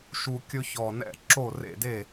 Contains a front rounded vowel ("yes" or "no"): no